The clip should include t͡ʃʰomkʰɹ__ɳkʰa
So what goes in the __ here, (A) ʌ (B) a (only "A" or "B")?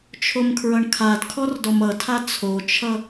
A